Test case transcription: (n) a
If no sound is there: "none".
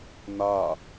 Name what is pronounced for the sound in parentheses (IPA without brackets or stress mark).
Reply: n